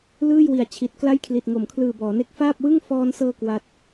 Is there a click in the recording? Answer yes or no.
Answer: no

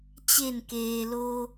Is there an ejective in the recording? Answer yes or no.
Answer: no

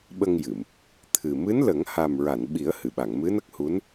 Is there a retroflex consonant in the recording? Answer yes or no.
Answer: no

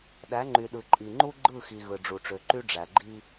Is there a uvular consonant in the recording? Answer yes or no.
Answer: no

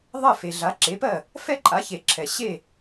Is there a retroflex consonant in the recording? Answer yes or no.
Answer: no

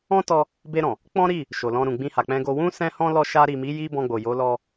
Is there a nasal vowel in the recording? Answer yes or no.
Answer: yes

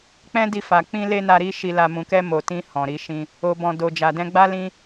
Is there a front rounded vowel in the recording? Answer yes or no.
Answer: no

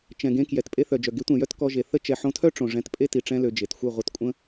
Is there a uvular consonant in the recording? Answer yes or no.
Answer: yes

